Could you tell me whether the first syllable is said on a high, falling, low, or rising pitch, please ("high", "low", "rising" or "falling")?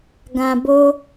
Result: low